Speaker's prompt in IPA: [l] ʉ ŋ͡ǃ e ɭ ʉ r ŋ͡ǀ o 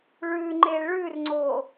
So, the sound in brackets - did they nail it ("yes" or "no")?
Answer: no